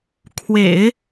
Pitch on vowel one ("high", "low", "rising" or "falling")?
low